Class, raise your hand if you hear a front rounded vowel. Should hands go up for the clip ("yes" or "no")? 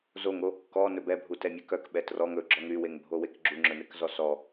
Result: yes